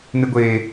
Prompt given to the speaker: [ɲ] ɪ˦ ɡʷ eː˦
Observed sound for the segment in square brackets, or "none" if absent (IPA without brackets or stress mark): n